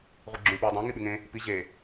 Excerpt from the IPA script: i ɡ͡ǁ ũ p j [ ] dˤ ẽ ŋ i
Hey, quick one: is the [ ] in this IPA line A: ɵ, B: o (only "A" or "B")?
A